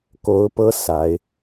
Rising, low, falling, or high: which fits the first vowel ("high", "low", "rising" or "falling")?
rising